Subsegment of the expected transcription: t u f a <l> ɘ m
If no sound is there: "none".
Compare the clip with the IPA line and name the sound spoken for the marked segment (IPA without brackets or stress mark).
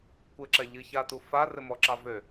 r